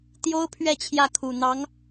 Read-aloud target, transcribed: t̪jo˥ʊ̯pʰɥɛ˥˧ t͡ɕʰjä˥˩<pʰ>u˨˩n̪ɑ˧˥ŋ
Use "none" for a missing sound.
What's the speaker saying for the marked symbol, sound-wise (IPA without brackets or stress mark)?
kʰ